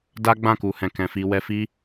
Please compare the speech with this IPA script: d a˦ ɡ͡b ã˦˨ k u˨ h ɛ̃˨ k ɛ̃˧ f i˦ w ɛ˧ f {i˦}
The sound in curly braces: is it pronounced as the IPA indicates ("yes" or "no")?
yes